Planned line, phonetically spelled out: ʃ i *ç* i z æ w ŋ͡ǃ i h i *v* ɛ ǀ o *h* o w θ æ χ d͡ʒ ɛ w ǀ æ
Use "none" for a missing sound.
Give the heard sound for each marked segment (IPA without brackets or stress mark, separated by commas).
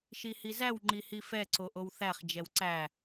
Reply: h, f, ʔ